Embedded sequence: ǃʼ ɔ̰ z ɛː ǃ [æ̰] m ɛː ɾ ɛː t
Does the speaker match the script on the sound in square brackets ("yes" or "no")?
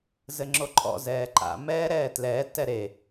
no